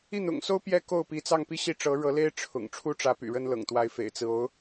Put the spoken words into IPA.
i˥˩n̪ʊ̰˨˩ŋso˥ʊ̯ pjɛ˥ko˥˩ʊ̯pi˧˥ t͡sɑ˥˧ŋpi˥˧ ɕi˥˩ʈ͡ʂɤ˧˥ɻɤ˧˥le˥ɪ̯ ʈ͡ʂʰʊ̰˨˩ŋ ʈ͡ʂʰu˥ʈ͡ʂä˧˥py̰˨˩ ɻə˥n lɤ̰˨˩ŋt̪wa˧˥ɪ̯ fḛ˨˩ɪ̯t͡sɹ̩˦ o˧˥ʊ̯

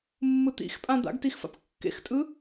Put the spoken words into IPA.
mːɯt̪ḭxpʼã d̪a̰ɡtixfa̰p kːḛxtʼɯ

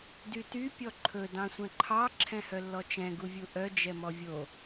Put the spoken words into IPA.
dyty pʲɔǃʰɵ dɑ̃sʷɛ̃ǃʰɑ ǁʰɛ̃hœlːɔt͡ʃɛ̃ ɡuvʲuʔœ d͡ʒɛmɔvʲo

